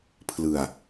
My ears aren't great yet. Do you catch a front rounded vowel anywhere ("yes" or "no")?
no